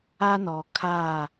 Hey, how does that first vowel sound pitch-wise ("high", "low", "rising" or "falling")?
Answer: high